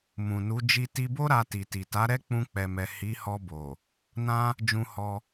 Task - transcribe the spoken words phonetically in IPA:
m ũ˨ n u˨˦ d͡ʒ i˧ t i˧ b o˦ ɾ a˧ t i˨ t i˨ t a˨˦ ɾ ɛ˦ k͡p ũ˧ k͡p ɛ˨ m ɛ˨ h i˨˦ h ɔ˧ b o˨ | n ã˧ | d͡ʒ ũ˧ h ɔ˧

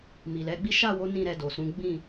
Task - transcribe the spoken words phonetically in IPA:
m i˨ l ɛ˨˦ ɡ͡b i˦ ʃ a˦˨ w o˨˦ n ĩ˦˨ ɾ ɛ˧ d o˨ s ũ˨˦ ɡ͡b ĩ˦˨

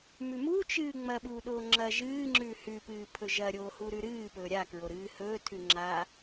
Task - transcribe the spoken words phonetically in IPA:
m ʉ m u t͡ʃ ɨː ŋ͡m ɐ ɓ uː ɗ o ŋ͡ǁ ɐ ʒ ɨː ŋ͡ǁ ʉ h ʉ p ɨː pʰ ɵ ʒ ɐ ɾʲ oː h u ɾ ʉ ɾ ɨː p ɵː ɾʲ a k ɹ o ɾ ɨː h ɵː tʰ ʉ ŋ͡ǁ a

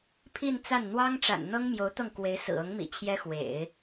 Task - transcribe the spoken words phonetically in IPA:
pʰ i˥˧ n t͡s a˥˩ n n̪ w ɑ˥ ŋ ʈ͡ʂ a̰˨˩ n n̪ ɤ˥ ŋ m j o˧˥ ʊ̯ t̪ ɤ˥˩ ŋ k w e˧˥ ɪ̯ s ɹ̩˨˩ ɤ˧˥ ŋ m ḭ˨˩ t͡ɕʰ j ɛ˥ x w ḛ˨˩˦ ɪ̯

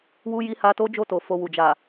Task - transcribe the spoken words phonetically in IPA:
w u˦ j i˦ h a˧ t o˦ d͡ʒ o˦˨ t o˨ f o˧ w u˨ d͡ʒ a˨

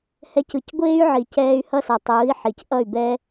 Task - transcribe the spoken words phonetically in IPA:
h ɛ˧ c ɯ˨ c ɡʷ eː˦ y̯ ʕ i˨ c ɛː˧ y̯ h ʌ˦ s ʌ˨ tˤ ɯː˨˦ i̯ ħ i˨ c ʔ ʌ˦˨ y̯ b ɛː˦

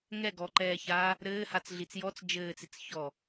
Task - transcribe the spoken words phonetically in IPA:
ŋ ɛ ɡ ɔ ǃ ɛː ç aː | ɾ ɘː h a t͡s ɮ i t͡s j ɔ t͡s d͡ʒ ɘː t͡s i t͡s ç ɔ

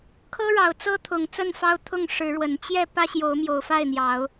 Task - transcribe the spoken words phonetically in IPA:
kʰ ɤ˦ ɻ ɑ˨˩ ʊ̯ t͡s ɤ˦ t̪ʰ ʊ˨˩ ŋ t͡s ə˥˨ n f ɑ˦ ʊ̯ t̪ʰ ʊ˥˨ ŋ ʂ ɻ̩˨˦ ɻ w ə˨˩ n t͡ɕ j ɛ˥˨ p ä˦ ɕ j o˨˦ ʊ̯ m j o˨˩ ʊ̯ f a˥˨ ɪ̯ n̪ j ɑ˨˦ ʊ̯

